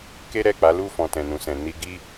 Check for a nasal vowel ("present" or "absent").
present